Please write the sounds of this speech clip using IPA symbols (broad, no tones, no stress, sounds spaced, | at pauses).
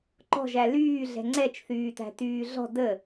ǃ ɔ̤ ʒ æ l yː ɮ ɛ̤ ŋ͡ǀ ɛ t͡ʃ θ yː t æ̤ t yː ɮ ɔ̤ d ə